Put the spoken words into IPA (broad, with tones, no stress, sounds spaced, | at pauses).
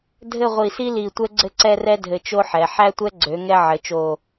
dʱ ɘ˥˧ ʁʷ i˧˩ s i˥ l i˧˩ tʷ ɛ˥ ɡ͡ǀ ɘ˥˧ ǀ ɛ˥˧ r ɛ˥ dʱ ɘ˧ t͡ʃ o˥ ħ ɛ˩˧ ħ æ˥ tʷ ɛ˥ ɡ͡ǀ ø˩˧ ŋ ɛ˧ ʕ ɘ˩˧ t͡ʃ o˧˩